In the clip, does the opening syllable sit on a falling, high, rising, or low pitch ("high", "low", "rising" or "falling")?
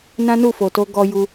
high